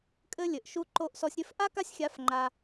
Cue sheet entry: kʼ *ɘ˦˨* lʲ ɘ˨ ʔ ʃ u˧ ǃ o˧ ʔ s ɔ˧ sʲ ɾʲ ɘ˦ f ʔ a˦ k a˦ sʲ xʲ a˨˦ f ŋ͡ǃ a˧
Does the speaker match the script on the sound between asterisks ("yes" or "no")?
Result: no